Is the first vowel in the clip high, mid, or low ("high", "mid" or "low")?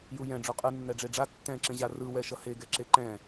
high